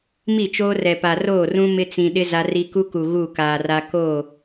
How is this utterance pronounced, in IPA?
m i˦˨ t͡ʃ oː˦ r ɛ˨ p a˨ r oː˦˨ r ũ˦ m ɪ˦ t͡s ĩ˨ ɗ ɪ˦ z a˦ r i˦ k u˦ k u˨ ɣ u˦˨ k aː˨ r a˦ k o˦˨

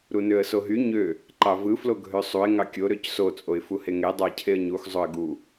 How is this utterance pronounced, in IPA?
ɾ u n ø ə̯ s o ɦ y ɲ ø | ǃ ɑ v ɯ f l o ɡʱ ø sˤ u ɪ̯ ŋ ɑ kʲ o ɾ ø c s o t͡sʼ o ɪ̯ f u h e ŋ e dˤ ɑ ɪ̯ cʰ e ə̯ ɲ u x zˤ o ə̯ ɡ u

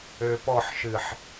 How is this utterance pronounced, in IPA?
ø p ɔ ħ ʃ ɨ ħ

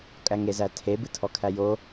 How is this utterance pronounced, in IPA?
kʼ æ ŋ e z æ tʰ e b ɨ tʰ ɔ kʰ æ j o

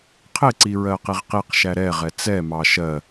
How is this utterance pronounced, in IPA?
qʰ ɪ ǀ i ɹ ɜ q i ʁ q i q ʃ æ ɾ ɛ ʁ ɛ t͡s ɛ m ɑ ʃ ɜ

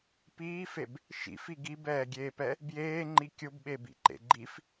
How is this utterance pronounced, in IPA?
p iː f e b | ʃ ḭ f i ɡ i b ɛː ɡʲ eː p ɛ | b j eː ŋ͡ǃ i kʲ ʊ b ɓ e b ḭ ǃ ḛ ɡ͡ǃ i f

